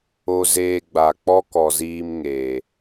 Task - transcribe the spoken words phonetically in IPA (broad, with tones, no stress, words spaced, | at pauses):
o˧zeː˧ɡ͡ba˨ k͡pɔ˦kɔ˨ziː˧m ŋeː˨